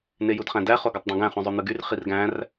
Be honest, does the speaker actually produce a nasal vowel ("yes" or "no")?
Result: yes